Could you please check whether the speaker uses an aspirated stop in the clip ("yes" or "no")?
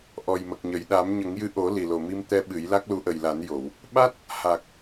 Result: no